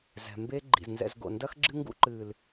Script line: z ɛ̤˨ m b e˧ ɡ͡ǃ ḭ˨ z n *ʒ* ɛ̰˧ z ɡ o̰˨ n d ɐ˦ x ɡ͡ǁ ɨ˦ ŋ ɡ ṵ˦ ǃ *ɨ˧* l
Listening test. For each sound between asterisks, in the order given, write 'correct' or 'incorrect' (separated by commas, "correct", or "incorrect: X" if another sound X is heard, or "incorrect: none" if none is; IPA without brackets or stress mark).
incorrect: z, incorrect: ɨ˨